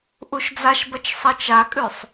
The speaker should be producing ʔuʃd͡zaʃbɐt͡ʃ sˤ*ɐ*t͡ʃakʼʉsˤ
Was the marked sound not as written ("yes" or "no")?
no